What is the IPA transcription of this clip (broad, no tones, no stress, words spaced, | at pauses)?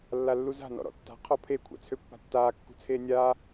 lːalːuza̤ nɔ̰ɾɔ̰tːa̤ qʰɔpʰe kʷʰa̰t͡sʰøpːa̤tːaː kːṳt͡sʰeːnʲaː